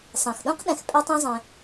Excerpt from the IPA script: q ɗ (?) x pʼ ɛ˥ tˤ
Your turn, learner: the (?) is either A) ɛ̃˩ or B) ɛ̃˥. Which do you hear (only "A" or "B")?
A